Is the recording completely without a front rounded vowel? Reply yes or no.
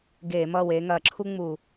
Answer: yes